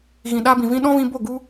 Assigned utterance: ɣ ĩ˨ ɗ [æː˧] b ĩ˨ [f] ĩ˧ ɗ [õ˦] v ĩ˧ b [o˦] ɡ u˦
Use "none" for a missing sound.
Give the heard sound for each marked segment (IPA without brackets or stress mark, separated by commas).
aː˧, v, ɔ̃˦, o˦˨